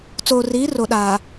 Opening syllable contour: low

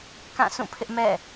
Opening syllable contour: falling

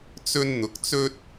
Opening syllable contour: high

